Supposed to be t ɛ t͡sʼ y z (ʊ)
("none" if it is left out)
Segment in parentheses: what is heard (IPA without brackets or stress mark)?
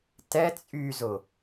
ʊ